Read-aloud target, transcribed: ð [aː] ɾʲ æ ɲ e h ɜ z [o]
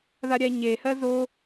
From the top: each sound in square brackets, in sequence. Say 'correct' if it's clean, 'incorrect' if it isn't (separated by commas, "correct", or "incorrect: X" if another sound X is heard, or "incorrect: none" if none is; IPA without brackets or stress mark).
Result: incorrect: a, correct